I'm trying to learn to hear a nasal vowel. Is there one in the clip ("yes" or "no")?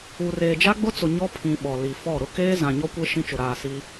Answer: yes